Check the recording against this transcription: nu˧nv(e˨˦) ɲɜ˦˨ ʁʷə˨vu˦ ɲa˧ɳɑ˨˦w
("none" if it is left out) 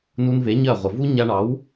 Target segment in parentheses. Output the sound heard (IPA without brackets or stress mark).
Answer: e˨˦